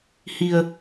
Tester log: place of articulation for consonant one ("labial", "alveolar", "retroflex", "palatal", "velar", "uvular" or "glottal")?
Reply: glottal